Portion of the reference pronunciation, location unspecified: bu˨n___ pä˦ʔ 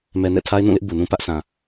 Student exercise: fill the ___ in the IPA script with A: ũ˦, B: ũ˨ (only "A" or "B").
A